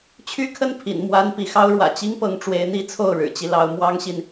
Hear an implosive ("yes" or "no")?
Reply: no